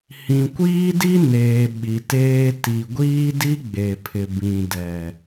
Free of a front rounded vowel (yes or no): yes